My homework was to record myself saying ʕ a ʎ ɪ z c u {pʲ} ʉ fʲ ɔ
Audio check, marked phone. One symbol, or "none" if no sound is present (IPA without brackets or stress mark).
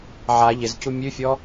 mʲ